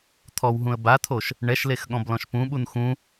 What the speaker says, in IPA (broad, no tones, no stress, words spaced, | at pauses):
t̪ʰɔwɦũə̯ bat̪ʰoʃ | ɳɛʃlex ɠɔ̃blɔ̃ʃpũɓun xũ